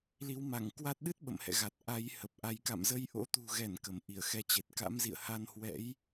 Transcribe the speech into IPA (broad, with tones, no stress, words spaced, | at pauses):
li˨˦wma˧˩ŋkwa˦˥t̚ ɗɨ˦˥t̚ ɓə̰˧˨mhɛ̰˧˨ɣa˨˩t̚ ʔa˨˦jhə˨˩p̚ʔa˨˦j ka̰˧˨mzə˧j ʔo̰˧˥t̪ṳ˨˩ɣɛ˧˩n kə˧˩mʔi˧˩ə̯xɛ˨˦t͡ɕe˨˩t̚ ka̰˧˥mzḭ˧˨ə̯ha˧nhwɛ̰˧˥j